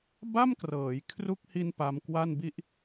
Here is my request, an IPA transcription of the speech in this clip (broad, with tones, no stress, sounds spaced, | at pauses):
b a˥˩ m k r ɤː˩˦ j kʰ r u˦˥ k̚ h i˧ n p a˧ m k w a˥˩ n b i˥˩ ʔ